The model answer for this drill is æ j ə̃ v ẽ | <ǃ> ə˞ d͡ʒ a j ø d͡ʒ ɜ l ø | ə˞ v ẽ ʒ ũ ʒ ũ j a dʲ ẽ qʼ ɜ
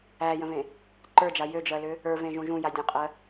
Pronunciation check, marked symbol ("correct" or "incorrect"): correct